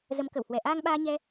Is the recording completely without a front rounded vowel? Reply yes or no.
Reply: yes